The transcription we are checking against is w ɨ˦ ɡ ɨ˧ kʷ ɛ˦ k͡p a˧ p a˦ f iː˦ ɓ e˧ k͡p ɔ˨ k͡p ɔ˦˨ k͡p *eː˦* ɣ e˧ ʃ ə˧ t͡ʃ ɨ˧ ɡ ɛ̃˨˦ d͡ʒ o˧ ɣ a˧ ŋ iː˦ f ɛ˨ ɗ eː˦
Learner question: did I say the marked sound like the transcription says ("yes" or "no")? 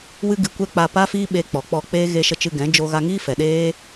yes